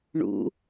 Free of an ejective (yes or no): yes